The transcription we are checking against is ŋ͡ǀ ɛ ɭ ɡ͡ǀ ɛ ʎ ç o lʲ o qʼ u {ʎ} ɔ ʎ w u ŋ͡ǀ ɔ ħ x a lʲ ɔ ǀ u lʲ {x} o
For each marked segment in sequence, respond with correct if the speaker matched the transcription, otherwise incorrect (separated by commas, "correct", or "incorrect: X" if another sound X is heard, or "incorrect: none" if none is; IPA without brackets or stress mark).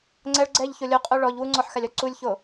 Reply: incorrect: ɭ, incorrect: ç